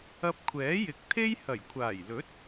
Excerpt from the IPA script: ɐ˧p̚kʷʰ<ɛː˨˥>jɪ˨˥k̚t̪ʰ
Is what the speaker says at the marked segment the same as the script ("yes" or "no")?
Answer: yes